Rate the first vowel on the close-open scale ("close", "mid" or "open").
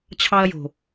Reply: open